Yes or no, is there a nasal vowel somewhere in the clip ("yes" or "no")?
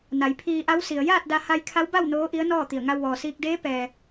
no